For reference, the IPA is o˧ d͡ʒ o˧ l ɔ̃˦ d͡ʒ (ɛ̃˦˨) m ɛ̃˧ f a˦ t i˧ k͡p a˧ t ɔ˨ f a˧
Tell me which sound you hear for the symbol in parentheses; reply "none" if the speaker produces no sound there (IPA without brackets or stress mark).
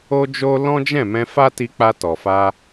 ɛ̃˦˨